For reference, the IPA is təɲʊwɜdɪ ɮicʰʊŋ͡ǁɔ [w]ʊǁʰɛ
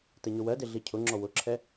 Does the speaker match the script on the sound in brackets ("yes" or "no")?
yes